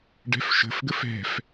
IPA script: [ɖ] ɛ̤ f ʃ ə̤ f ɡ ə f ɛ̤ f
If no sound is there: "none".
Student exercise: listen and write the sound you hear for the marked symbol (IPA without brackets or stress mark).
ɖ